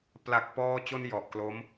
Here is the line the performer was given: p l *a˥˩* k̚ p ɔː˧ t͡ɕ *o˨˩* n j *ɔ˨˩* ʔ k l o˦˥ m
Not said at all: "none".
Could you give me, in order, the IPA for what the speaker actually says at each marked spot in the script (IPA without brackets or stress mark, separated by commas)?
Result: a˨˩, o˧, ɔ˨˩